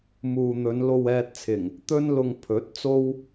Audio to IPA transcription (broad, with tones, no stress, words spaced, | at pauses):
muː˨n̪ɵ˨˧n lo˧wɛː˧t̚t͡sʰɪ˨˩ŋ | t̪ɵ˥n lʊ˧ŋ pʰɵ˨˥t̚ t͡so˥w